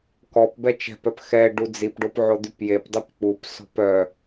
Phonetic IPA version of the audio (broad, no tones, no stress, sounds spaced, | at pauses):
k ɔ p b ɛ t͡ʃ ɛ̤ p œ p x ɛ ɖ u d͡z i p ɖ o p ʕ o d̪ y p j e p dˤ y p k͡p u p s ɔ̤ p œ